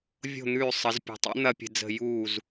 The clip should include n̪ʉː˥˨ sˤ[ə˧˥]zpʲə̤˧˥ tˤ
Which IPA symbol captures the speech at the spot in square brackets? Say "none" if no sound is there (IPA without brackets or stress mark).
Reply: ə˧˥